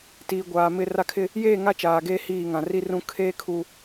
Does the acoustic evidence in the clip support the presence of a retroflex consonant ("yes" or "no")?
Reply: no